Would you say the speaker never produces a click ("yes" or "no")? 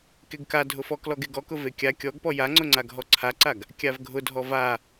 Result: no